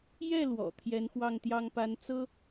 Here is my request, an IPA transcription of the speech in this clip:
jɛ˥˩ lwɔ̰˨˩ t̪ʰjɛ˧˥nxwɑ˥˩ŋt̪jɑ˥ŋpa˧˥n t͡sɤ˥

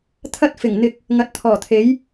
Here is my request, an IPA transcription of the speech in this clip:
t̪ʰɐ˥t̚fɪ˨˩ŋn̪ɪ˧k̚ | ŋɐ˨˥t̚t̪ʰɔː˨˩t̪ʰe˨˥j

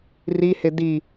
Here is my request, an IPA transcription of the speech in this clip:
rihɪ di

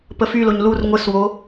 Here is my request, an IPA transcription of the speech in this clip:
pəfyloɲ lur ŋʷəswo

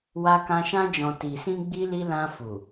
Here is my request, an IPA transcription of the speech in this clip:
wa˧kã˧ ʃã˧d͡ʒɔ̃˨ ti˨sĩ˧ɡ͡bi˧li˧ lã˧fu˨

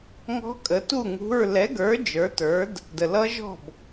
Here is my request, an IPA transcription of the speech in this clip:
ŋɔ̤˦˥kʼə˨˥tu˥˨ŋṳ˧˥˧ɹ lɛ˨˥ɡə˞˨˥ d͡ʒə˞˨˥tə˞˨˥d | də˨lʌ˦˥ʒɔ̤˥˨b

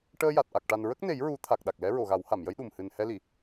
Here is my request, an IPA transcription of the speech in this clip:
ʈəː˧ja˨˩t̚ʔa˨˩k̚ʈa˨˩n ɹə˦˥k̚ne˨˩˦jɹu˨˩˦ t̪ʰa˨˩k̚ ɗa˨˩k̚lɛ˧˥ɹo˨˩˨ɣa˨˩˦w ha˨˩˨mjə˧˥jɗu˨˩m hɨ˨˩nhɛ˧li˨˩˨

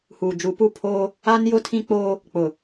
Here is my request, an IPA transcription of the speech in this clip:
huː˨d͡ʒu˨˦ pu˦pʰoː˦ | a˦njʊ˦ tʰĩ˦k͡poː˦ | k͡pʊ˨

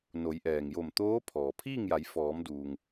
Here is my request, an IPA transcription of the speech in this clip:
no˩˧jʔɛː˩ŋjo˧˩mt̪oː˧˥ pʰɔː˩pʰiː˥˨ŋja˩˧j fɔː˩˧mduː˩ŋ

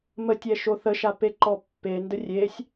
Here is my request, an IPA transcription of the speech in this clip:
mətʲɛ ʃoθəʃa peǃɔpːendə rʲesʲ

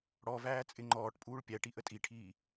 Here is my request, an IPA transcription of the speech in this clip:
ɽɔvæː t͡sʼɪŋ͡ǃɔːʈpʼuːɭ pʲæʈi ʔətʼiʈʰiː

